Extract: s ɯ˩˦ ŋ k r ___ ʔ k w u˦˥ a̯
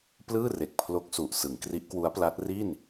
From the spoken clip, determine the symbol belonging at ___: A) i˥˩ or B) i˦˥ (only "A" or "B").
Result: B